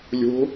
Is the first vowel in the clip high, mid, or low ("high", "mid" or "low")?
mid